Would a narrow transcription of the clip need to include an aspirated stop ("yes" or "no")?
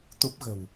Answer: no